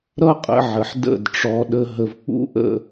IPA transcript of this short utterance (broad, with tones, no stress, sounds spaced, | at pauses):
ɾ ʌ˦ qʼ ə̰˧ ʕ ə˨ ħ d ə̰˦˨ d ʈ͡ʂ ɔ˧ ɗ ə˧ ɦ ə˨ v k͡p ṵ˦ ʔ ə̰˦˨